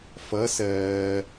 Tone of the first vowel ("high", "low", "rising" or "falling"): rising